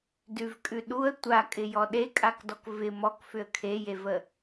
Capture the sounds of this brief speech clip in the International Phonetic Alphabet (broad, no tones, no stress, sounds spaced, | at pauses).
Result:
d ʉ v kʼ ʉ ɗ u ə̯ tʷ a kʼ ɪ j ɔ ɗ e kʼ a k d ɔ k v ɪ m ɔ k f ʏ ə̯ kʰ e j e v ə